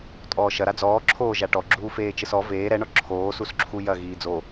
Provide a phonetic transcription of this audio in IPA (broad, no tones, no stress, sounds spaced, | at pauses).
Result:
tʼ ɔː ʃ ɐ ɾ a d͡z ɔː ǁʰ oː ʒ a ʈ ɔ ɡ͡ǁ uː f eː t͡ʃ ɘ s ɔ v eː ɾ ɛ ɳ ɔ ǁʰ oː s u s ǁʰ u j ɐ ɣ iː d͡z o